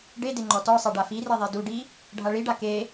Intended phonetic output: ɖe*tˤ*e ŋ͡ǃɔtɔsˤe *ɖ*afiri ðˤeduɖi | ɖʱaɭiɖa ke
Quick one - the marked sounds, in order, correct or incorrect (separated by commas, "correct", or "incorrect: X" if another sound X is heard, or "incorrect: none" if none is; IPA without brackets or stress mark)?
incorrect: d, correct